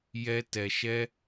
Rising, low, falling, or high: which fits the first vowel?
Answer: high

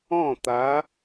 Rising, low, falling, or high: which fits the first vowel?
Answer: falling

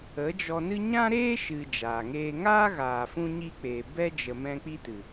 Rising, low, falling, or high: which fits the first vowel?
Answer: rising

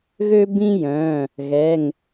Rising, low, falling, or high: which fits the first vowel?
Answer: high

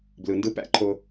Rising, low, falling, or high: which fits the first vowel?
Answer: low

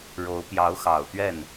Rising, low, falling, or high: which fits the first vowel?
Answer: rising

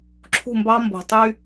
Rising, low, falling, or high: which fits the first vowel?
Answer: falling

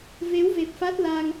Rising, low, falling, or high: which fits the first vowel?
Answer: rising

